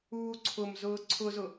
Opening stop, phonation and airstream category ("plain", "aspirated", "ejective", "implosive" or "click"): click